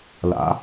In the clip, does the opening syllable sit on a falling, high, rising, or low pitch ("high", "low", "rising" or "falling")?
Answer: rising